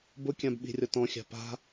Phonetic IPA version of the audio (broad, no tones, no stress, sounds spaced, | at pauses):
b ʊ kʲ ã b ɓ i̤ rʲ ɔ t ɔ̃ xʲ a̤ p a̤